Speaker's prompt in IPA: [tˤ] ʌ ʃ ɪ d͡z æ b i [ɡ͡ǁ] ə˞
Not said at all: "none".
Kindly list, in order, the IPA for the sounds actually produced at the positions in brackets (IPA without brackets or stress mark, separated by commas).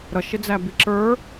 ɾ, ǁ